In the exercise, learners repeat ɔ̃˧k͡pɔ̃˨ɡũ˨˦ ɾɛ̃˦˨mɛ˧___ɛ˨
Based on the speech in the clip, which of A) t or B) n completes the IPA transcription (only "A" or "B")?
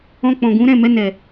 B